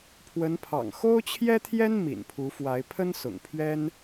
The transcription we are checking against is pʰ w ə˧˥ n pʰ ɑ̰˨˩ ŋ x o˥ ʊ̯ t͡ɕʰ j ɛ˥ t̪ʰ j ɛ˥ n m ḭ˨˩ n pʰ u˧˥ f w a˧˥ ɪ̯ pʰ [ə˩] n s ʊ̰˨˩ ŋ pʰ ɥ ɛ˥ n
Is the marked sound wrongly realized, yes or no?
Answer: yes